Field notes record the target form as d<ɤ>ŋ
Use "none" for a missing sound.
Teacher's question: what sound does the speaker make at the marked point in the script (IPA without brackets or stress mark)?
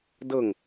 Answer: ɤ